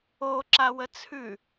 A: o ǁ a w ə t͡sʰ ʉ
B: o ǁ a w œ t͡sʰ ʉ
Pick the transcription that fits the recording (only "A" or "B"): A